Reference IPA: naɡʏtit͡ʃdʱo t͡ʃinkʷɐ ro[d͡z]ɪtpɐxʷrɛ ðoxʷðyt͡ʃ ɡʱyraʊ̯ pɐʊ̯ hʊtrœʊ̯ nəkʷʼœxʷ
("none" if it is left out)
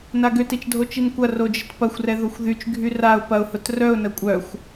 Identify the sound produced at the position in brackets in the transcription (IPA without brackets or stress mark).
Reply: d͡ʒ